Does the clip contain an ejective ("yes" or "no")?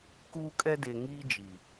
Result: yes